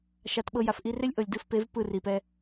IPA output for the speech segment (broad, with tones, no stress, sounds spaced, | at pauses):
ʃ a˨˦ t ɓ ɤ˧ j a˨ f ʔ i˧ r e˦ lʲ ʔ ɤ˨ lʲ d ɯ˧ f p e˨˦ v p ɯ˦˨ r i˨ p ɛ˧